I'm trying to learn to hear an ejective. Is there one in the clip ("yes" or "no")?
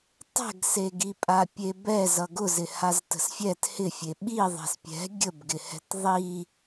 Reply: yes